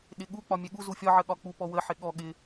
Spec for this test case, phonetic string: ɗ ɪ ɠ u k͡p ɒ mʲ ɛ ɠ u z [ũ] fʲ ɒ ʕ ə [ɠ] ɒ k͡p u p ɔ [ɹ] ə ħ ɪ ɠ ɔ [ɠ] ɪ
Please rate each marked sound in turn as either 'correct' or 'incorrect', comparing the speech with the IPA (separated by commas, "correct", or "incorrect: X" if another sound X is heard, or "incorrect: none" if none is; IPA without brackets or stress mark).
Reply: incorrect: u, correct, incorrect: w, correct